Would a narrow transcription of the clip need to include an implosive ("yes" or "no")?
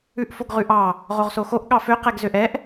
yes